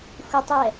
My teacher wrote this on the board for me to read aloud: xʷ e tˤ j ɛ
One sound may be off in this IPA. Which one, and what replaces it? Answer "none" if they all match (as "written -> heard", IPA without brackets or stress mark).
none